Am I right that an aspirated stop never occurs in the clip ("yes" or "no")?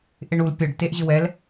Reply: yes